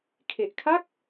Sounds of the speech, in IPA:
kʰ e˨˩ ʔ kʰ a˥˩ k̚

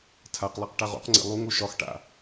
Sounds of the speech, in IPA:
tʰ a q lˠ a q ʈ a ʁ o̰ q ŋ͡ǀ ḛ lˠ u ŋ o ʃ ɒ x ʈ a̰

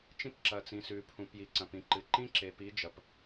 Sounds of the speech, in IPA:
t͡ʃ ĩ˦ p ǁ ɐ˨ t͡s ĩ˨ s ʉ˨ pʰ ũ˨ p j i˨ ǀ ɐ̃˨ p ĩ˨ ǃ ɨ˨ ǃ ĩ˦ ǁ e˨ p i˨˦ d͡ʒ ɐ˨ p

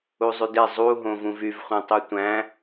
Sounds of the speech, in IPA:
u zˤ y d e zˤ u ɦ õ v ũ v y v χʷ ẽ tˤ y tʷ æ̃

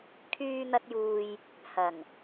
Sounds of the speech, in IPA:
kʰ yː˧ n̪ ɐ˧ t̚ j uː˨ j | h ɐ˨˩ ŋ

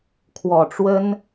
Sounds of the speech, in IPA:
kʰ w ɔ˨˩ ʈ͡ʂ w ə˥ n

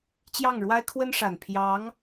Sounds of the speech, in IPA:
t͡ɕ j ɑ˥˩ ŋ ɻ w a˥ ɪ̯ kʰ w ə˥ n ʂ a˨˩ n pʰ j ɑ˧˥ ŋ

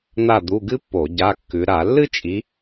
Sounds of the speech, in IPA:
n̪ a˥˨ d̪ u˧˥˧ ɡ ɨ˥ pː o˧˩˧ ɟ a˧˥˧ kː ʉ˨˦ ɾ a˧˩˧ lː ɨ˥ t͡ʃʼ i˨˦

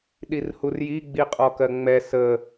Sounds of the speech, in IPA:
ɗ i r h u r j i ɡ͡b i qʼ ɔ k ɜ ŋ͡m ɛ s ə

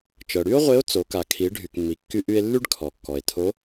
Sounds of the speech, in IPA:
t͡ʃ ɤ˩ ɽ y˥ o̯ ʁʷ e˧˥ o̯ t͡s o˩˧ k a˩ kʰ i˩˧ ɖʱ y˩ k mː i˩ kː y˧ ʔ y˧ e̯ lː y˥ ɖ kʰ ɔ˩ kː ɔ˩ e̯ tʰ o˧˥

